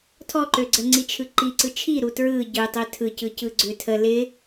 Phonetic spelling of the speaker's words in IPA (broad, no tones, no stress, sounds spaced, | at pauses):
tʰ ɔ ǃ ø ɡ͡ǀ ə ŋ͡ǀ i t͡ʃʰ ɯ ǃ i ǀ ɯ t͡ʃʰ i ɾ u t ɹ ɯ ɟ ɯ tˤ ø tʰ ɯ c ɯ c ɯ ɡ͡ǀ ø tʰ ə l ɪ